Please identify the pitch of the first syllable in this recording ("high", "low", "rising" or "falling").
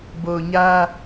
low